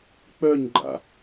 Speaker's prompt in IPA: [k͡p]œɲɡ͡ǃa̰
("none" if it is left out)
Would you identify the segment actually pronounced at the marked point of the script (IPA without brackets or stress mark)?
k͡p